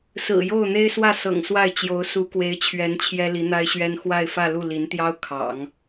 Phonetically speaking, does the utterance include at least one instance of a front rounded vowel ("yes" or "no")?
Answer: no